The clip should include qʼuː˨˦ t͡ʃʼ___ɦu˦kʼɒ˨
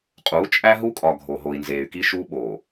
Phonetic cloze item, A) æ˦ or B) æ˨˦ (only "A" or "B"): A